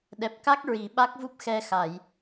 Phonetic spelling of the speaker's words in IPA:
ɗ ɛ˨˩ p̚ k a˦˥ k̚ ɹ i˨˩˨ ɓ a˦˥ k̚ v u˦˥ p̚ x ɛ˧ x a˨˩˨ j

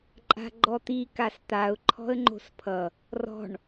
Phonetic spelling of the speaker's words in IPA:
ǃʼ a̤ ɡ͡ǃ ɔ t̪ i k a s t̪ a ʊ̯ ǃʰ ɔ̤ ə̯ ŋ͡ǃ o̤ s pʰ ʌ | r ɔ̤ ɳ

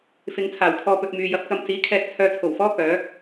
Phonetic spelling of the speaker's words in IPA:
f ɪ˨ ŋ t͡sʰ aː˨˩ w kʰ ɔː˧ p ɵ˧ t̚ m yː˨ j ɐ˨˥ p̚ k ɐ˧ m t͡s iː˨˥ kʰ ɛː˧ k̚ t͡sʰ œː˧ t͡sʰ o˨˩ w f ɔː˥ k œː˨˥

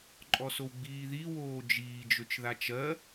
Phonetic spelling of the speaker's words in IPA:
ǃʼ ɔ s o w ɡ͡b iː ð i w oː d͡ʒ iː d͡ʒ ø t͡ʃ ð a t͡ʃ ɜ

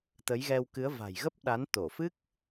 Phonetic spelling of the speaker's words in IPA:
t̪ ə˨˦ j ɣ ɛ˧ w k ɨ˨˦ ə̯ v a̤˨˩ j ɣ ə˦˥ p̚ ɗ a˨˦ n t̪ o˧˩ f ɨ˦˥ k̚

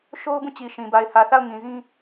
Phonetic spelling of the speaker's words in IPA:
ʃ o˦ ʊ̯ b ũ˦˨ t͡ɕ i˨ ʃ ĩ˨ b a˨ ɪ̯ h ä˨ θ a˦˨ ʊ̯ ŋ ĩ˨ z ĩ˦

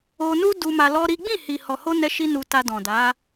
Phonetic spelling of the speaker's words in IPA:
o˧ n u˦ d u˧ m a˧ l ɔ˦ ɾ i˦ ɡ͡b ĩ˦˨ h i˨ h ɔ˨ h o˧ n ɛ˦ ʃ i˦ n u˧ t a˧ d ɔ̃˨ d a˨˦

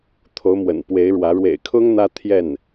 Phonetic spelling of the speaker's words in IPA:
t̪ʰ o˧˥ ʊ̯ m w ə̰˨˩ n p w e˧˥ ɪ̯ ɻ w ä˧˥ ɻ w ḛ˨˩ ɪ̯ kʰ ʊ˥ ŋ n̪ ä˥ t̪ʰ j ɛ˥˩ n

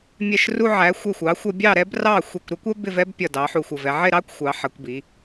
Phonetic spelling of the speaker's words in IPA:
mʲ ɛ˧˩ ʃ r u˧ ʕ æ˩˧ xʷ ɛ˧˩ xʷ ɑ˩˧ xʷ ʌ˧ bʲ ɑ˧˩ ɾ ɛ˧ b r ɑ˧˩ xʷ ɛ˧˩ kʷ ɾ æ˥ kʷ ɜ˥ b ɪ˥˧ v ɛ˥ b pʲ ʌ˧˩ d ɑ˩˧ ħ u˧˩ xʷ ʌ˧˩ v ɛ˧ ʕ ɪ˥˧ ɾ ɑ˥ kʷ xʷ ɑ˩˧ ħ ʌ˩˧ kʷ b i˩˧

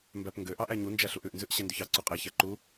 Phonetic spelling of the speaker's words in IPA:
m b æ p ŋ ɡ ø ʔ ɑ ʔ æ ɲ u n d͡ʒ æ ɬ u ʔ ʉ ʔ n z ʉ ʔ ɕ ɛ n d ʉ ç ɑ ǀ u qʼ ɛ ç æ ǃ u

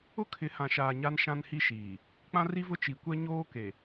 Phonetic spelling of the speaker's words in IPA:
ʊ˦ kʰ ɪ˨˦ h ã˨ ʃ aː˨ ɲ a˦ n ʃ ã˦ n h i˦ ʃ iː˨ | k͡p ã˦ r i˦ v ʊ˦ t͡ʃ i˨ kʷ ɛ˦ ɲ oː˦ k e˨

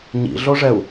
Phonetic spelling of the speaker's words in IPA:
ɲ ḭ ɮ o ʐ ɛ u̯

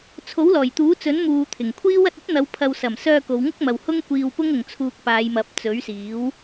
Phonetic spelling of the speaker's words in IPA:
t͡sʰ o˨˥ w l ɔː˨˩ j t̪ uː˨˥ t͡s ɵ˨˥ n m uː˨ t̪ʰ ɪ˨˩ ŋ kʷʰ iː˥ w ɐ˧ t̚ ɵ˥ t̚ n̪ ɐ˨˧ w pʰ ɐ˨ w s ɐ˨˩ m s œː˧ k o˨˧ w ŋ ʊ˥ k̚ m ɐ˨ w h ʊ˥ ŋ kʷ iː˧ w p ʊ˥ ŋ ʊ˨ ŋ t͡sʰ uː˧ k̚ p aː˨˧ j m ɐ˨˥ p̚ t͡s ɵ˨˥ ɥ s iː˨˥ w

